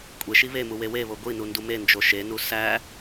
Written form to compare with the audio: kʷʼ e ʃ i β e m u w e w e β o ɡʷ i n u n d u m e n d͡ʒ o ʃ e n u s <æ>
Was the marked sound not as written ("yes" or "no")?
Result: no